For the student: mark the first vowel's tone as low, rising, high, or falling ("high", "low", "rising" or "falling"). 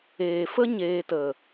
low